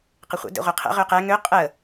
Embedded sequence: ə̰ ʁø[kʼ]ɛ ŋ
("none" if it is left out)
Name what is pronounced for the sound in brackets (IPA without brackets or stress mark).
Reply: q